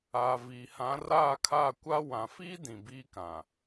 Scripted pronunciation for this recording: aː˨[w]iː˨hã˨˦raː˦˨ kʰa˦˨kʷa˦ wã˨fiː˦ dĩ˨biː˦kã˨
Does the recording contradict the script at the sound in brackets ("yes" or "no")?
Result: yes